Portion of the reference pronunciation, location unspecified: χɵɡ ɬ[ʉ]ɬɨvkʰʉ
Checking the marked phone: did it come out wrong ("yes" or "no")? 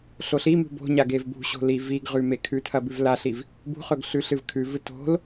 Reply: no